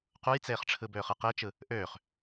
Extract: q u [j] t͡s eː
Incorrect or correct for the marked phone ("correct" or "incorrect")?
correct